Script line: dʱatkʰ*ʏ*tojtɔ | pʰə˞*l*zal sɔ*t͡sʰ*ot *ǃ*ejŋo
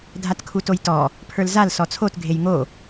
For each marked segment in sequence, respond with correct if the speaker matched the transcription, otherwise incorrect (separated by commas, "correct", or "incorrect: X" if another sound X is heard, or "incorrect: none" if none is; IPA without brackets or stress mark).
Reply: incorrect: u, correct, correct, incorrect: ɡʱ